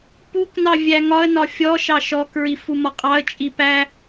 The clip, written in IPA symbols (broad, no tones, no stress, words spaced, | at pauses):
puknɑ vʲæŋɒə̯nɒ fʲɔʃɑ ʃɔkɹi fumɒqʼɑə̯t͡ʃʼi pæ